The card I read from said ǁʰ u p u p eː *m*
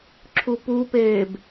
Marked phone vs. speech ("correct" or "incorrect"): incorrect